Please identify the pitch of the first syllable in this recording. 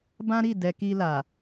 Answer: high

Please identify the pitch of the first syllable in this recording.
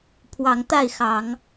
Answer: rising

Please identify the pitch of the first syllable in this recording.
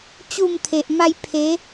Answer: falling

